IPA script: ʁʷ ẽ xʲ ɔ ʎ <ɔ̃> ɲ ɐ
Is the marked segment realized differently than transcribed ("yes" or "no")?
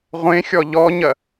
yes